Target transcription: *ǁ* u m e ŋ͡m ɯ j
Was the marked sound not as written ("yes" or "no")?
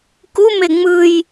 yes